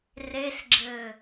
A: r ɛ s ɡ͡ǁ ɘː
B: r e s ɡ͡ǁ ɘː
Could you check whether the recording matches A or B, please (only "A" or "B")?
B